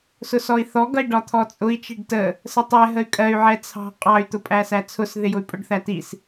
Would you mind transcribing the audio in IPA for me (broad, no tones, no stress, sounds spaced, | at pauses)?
s ʊ s ɔ i̯ θ ɔ ɡ ʌ i̯ ɖ ɒ t̪ʰ ɔ t͡sʼ ʊ i̯ t͡ʃ i ɖ t ə | s ə tˤ ɛ ɦ ə y̯ kʼ ɜ y̯ ʕ ɛ t͡sʰ ɑ̤ qʼ ɑ y̯ t̪ ʊ pʼ æ s æ t͡sʰ ʊ s ð ɪ j ʊ y̯ pʼ ʊ ɖ θ æ t i s